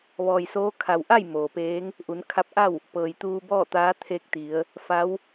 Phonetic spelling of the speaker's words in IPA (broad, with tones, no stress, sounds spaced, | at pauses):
ʋ ɔː˩ j s oː˧˥ kʰ a˩ w ʔ a˥˨ j m oː˩ p eː˧˥ ŋ | ʔ u˩˧ n kʰ a˧˥ p̚ ʔ a˥˨ w | p ɤː˩ j t̪ uː˧ b ɔː˥˨ t̪ aː˧˥ t̪ʰ e˧ k̚ t̪ i˩˧ ə̯ | f a˧˥ w